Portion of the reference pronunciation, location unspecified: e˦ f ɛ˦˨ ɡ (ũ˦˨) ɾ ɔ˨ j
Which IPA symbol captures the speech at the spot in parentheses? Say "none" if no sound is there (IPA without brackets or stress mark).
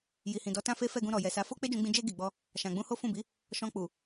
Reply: ũ˧